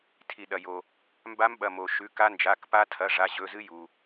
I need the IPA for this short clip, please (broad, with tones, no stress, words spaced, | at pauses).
tʰi˩ɗɐ˩jo˩ | mba˦˥mɓɐ˩˧˩mo˩ ʃʉ˩˧˩ka˦˥ nd͡ʒa˩˧˩kpa˦˥ tʰɐ˩˧˩ ʐa˩˧˩ʑɵ˩˧˩zɨ˦˥ju˩